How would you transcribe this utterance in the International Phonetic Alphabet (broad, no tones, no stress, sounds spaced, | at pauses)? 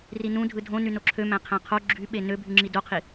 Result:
r i n ũ dʱ ɯ dʱ õ n y n o ǁʰ ø m æ̃ qʰ æ̃ qʰ o ɡ͡ǁ y ɓ e n ø bʱ y ŋ͡ǁ i d o qʰ i